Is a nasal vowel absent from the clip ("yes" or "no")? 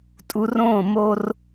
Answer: no